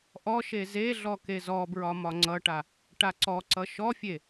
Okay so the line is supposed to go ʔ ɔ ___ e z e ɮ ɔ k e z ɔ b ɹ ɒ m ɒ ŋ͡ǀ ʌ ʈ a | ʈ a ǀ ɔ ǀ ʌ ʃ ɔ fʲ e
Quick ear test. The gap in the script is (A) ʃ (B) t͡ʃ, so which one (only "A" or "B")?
A